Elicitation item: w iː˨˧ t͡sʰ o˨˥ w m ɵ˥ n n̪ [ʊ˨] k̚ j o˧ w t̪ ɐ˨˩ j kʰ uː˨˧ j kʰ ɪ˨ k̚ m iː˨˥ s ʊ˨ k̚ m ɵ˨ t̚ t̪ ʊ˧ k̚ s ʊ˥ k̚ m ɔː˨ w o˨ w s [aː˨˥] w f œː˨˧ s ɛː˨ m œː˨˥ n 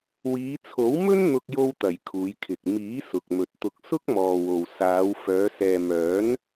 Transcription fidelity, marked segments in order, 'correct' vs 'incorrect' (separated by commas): incorrect, incorrect